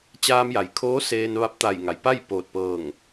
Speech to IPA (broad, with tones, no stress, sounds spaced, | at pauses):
t͡ɕ aː˧ m j a˩ j kʰ oː˧˥ s eː˧ n ʋ a˧˥ p̚ t̪ a˧˩ j ŋ a˩ j p a˥˨ j p oː˧˩ t̚ p ɤː˧˩ ŋ